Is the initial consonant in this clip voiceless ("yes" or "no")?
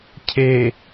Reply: yes